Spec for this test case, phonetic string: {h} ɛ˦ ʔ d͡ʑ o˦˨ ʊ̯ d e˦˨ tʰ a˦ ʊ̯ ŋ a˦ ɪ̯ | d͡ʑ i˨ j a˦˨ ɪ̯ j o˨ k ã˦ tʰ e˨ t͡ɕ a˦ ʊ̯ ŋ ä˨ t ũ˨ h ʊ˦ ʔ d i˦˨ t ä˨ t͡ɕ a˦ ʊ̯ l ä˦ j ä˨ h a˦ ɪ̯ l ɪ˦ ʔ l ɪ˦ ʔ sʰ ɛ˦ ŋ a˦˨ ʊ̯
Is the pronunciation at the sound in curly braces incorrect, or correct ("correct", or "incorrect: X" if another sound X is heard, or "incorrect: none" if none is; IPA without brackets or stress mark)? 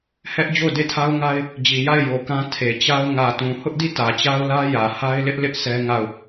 correct